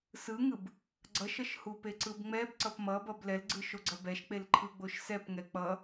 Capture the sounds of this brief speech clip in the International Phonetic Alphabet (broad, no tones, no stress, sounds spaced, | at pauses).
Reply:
s ɯ ŋ ɯ b | ɡ͡ǀ ʌ ʃ ʌ ʃ h u p e ǀ ɯ b ŋ͡m ɛ b ǀ ʌ p m ʌ b ʌ b l ɛ l ɡ͡ǀ ɯ ʃ o ɡ͡ǀ ʌ b ɛ ʃ k͡p e l ǃʰ ɯ ɡ͡b o ʃ s ɛ p ŋ ɛ k͡p ʌ